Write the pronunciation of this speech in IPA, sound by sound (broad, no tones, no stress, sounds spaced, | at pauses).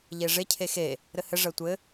ʎ e ʐ e cʰ e x e | ɾ ɘ h ɘ ʐ ɜ tʷ ɘ